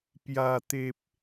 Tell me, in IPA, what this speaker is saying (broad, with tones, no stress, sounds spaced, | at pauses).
p j a˨˩ t̪ e˨ p̚